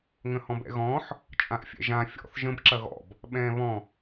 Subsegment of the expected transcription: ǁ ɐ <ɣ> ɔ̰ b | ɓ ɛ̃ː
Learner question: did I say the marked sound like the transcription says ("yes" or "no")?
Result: yes